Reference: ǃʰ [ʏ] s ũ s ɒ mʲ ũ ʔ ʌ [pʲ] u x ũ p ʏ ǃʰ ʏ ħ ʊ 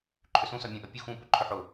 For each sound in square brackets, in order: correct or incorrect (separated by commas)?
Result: correct, correct